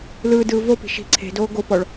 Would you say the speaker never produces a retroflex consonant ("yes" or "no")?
no